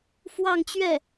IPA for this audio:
fwɑ˥˧ŋt͡ɕɥɛ˥˩

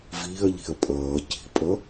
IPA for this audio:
viːɐ̯ʎi̤ɐ̯ pʼʌː ci̤pʼʌ

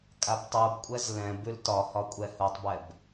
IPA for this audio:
kʼabtˤubkʷʼɛz lɛ̃ bʉltɒhɒ kʷʼɛhutˤbɛb

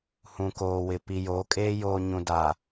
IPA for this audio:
hũ˨koː˨wɪ˨ pi˨jo˨˦kʼeː˦ joː˨ ɲũ˨da˨

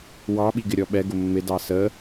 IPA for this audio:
wɑɓiɡɪɾʲɔ ɓɛɡʊ mːɪdɑ sə

